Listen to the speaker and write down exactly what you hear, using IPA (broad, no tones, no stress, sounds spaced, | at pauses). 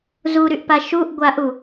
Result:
z u ɾ y ʔ p a ʃ u ʔ ɡʷ a ʔ u